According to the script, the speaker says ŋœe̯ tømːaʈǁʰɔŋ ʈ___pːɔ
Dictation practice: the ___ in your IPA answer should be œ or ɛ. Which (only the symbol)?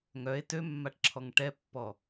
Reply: ɛ